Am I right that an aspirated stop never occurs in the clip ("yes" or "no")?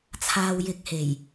no